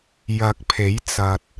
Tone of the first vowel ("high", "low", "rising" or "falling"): rising